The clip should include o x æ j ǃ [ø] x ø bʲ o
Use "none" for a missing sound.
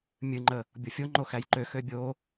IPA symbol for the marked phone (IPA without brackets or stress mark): ø